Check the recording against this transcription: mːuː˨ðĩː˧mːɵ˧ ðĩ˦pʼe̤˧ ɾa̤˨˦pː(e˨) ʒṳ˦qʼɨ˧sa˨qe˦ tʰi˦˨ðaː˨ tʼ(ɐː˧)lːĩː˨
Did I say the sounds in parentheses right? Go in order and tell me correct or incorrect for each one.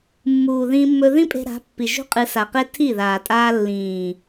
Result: incorrect, incorrect

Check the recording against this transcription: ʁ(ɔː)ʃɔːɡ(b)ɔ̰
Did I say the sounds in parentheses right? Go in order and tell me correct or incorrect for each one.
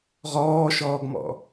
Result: correct, incorrect

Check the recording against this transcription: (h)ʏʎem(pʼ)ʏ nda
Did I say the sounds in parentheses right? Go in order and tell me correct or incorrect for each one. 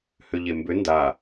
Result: correct, incorrect

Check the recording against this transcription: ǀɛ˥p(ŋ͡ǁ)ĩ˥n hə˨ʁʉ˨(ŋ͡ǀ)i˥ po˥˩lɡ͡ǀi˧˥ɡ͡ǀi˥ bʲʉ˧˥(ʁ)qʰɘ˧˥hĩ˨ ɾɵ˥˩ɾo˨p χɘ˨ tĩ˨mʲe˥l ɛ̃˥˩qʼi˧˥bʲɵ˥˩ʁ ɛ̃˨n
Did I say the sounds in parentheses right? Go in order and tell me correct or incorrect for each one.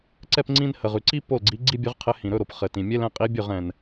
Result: incorrect, incorrect, correct

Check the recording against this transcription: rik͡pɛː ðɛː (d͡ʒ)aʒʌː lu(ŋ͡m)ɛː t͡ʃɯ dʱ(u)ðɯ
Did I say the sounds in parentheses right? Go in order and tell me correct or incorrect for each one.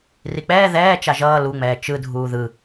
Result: incorrect, correct, incorrect

